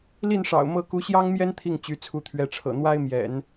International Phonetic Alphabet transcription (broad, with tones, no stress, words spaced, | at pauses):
li˥˩nʂɑ̰˨˩ʊ̯ mɤ˥˩ ku˧˥ɕjɑ˥ŋmjɛ˥n t̪ʰi˥˩ŋ t͡ɕy˧˥t͡sʰu˧˥t̪ʰɥɛ˧˥ʈ͡ʂʰɤ̰˨˩ n̪wa˥ɪ̯mjɛ̰˨˩˦n